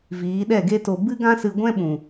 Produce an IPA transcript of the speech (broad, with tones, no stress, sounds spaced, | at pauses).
v iː˨˦ ɗ ɛ˦˨ ɡ e˦ t o˧ b ɨ˦ ɡ ã˦ s ɨ˧ ɡʷ ɛ̃˦ ɓ ũ˨